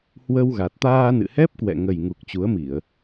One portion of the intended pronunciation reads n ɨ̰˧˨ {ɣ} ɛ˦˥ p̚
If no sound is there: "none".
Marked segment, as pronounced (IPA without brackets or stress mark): h